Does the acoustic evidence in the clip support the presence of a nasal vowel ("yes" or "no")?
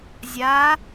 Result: no